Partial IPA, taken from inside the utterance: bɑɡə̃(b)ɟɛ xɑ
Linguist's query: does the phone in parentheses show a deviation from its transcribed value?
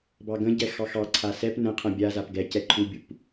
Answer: yes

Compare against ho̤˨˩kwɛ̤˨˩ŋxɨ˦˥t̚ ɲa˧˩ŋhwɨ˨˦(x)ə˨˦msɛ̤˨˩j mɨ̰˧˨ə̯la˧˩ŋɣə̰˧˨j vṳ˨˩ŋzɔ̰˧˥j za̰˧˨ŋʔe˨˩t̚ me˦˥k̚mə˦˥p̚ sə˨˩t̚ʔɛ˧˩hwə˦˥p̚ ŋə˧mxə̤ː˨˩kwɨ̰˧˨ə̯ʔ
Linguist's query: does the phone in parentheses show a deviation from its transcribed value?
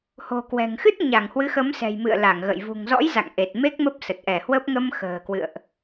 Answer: no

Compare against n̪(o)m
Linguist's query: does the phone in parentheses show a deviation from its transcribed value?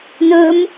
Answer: yes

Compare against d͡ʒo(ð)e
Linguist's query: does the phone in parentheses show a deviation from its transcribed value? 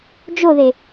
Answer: no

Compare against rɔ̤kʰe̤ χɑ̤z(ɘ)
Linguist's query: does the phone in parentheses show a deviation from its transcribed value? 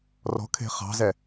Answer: yes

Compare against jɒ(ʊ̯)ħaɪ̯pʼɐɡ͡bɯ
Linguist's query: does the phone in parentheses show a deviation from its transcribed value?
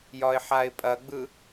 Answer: yes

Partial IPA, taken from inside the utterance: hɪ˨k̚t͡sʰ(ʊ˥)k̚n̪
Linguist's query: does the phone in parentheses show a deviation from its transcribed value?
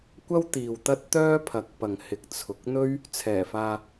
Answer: yes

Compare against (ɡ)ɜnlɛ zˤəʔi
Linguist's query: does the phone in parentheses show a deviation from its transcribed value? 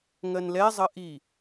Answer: yes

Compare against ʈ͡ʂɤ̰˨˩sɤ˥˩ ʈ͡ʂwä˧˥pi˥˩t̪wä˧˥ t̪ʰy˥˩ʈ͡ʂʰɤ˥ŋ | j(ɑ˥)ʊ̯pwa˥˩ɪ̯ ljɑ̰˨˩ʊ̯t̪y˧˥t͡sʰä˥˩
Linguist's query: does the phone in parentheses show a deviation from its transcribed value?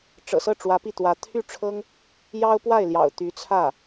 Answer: no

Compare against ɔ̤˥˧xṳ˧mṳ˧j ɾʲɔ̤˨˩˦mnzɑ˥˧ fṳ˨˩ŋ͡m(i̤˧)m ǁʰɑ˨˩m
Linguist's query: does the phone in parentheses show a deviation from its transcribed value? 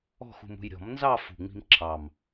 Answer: no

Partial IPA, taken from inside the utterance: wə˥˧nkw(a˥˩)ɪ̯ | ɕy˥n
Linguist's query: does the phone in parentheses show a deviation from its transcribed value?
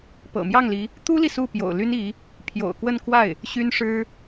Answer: no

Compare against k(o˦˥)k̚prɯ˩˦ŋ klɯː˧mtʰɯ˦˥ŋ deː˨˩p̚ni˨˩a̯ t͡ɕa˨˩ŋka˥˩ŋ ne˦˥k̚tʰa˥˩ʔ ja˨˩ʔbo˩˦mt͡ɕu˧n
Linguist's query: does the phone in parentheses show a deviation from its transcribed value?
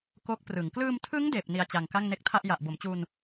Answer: no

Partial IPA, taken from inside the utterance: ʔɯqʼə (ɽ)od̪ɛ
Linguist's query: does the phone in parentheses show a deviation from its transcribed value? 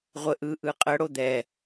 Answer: no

